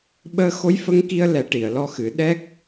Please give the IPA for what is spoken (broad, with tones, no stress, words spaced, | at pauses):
ɓəː˧xo˧˥jfə˧˥ŋki˧ə̯ lɛ˨˩˦ ʈi˨˩˨ə̯lɔ˧xɨ˨˩˦ ɗɛ˦˥k̚